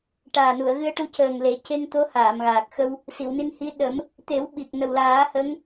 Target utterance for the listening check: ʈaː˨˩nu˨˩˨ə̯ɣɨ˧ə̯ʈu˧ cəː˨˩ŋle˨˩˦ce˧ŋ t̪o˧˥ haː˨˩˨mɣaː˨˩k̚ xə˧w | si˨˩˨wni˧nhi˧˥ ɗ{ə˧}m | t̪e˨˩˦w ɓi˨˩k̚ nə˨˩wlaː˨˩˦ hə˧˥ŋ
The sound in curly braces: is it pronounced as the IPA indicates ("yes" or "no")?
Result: no